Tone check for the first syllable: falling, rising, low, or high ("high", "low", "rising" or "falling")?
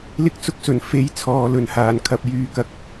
high